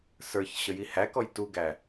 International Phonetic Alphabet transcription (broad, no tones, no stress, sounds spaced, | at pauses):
s ə˞ ç ɕ ə j i h æ k ɔ j t u ɡ æ